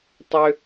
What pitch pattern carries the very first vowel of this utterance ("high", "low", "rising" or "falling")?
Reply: high